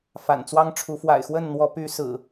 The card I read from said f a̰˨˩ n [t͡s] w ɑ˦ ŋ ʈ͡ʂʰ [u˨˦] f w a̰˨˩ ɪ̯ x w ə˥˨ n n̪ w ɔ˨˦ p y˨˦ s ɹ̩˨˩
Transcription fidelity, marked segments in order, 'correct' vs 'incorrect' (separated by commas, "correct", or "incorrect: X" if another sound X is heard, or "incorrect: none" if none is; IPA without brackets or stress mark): correct, correct